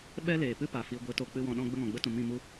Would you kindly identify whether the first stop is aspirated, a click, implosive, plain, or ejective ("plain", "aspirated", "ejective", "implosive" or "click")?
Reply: implosive